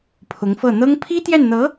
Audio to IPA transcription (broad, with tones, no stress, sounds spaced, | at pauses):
pʰ ʊ˧˥ ŋ f ɤ˥˩ n̪ ɤ˥ ŋ pʰ i˥ t̪ j ɛ˥˩ n n̪ ɤ˧˥